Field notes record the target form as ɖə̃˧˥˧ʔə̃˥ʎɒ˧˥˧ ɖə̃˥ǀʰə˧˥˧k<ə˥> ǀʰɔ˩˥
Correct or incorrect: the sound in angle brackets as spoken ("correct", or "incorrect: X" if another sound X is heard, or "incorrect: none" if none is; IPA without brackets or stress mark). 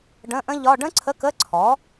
incorrect: ə˧˥˧